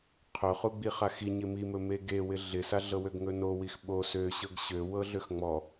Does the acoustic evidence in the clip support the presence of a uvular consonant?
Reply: yes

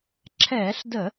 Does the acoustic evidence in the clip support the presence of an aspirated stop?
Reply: yes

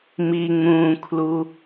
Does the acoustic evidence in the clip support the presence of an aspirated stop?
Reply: yes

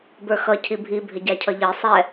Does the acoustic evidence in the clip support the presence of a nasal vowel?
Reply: no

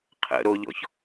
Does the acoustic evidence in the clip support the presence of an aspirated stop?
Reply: yes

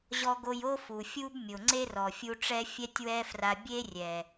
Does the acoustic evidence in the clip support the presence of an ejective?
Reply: no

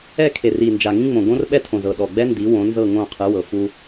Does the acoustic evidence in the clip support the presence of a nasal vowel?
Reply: yes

